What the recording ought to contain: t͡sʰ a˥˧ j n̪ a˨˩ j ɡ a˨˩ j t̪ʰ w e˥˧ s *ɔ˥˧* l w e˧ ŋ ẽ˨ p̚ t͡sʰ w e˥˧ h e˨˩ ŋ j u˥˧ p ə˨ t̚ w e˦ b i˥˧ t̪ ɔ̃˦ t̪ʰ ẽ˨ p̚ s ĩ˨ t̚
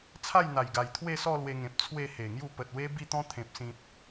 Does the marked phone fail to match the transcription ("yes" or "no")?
no